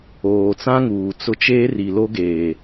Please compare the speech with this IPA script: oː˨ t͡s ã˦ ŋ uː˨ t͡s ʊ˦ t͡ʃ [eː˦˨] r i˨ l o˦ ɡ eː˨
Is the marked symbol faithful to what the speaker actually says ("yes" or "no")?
no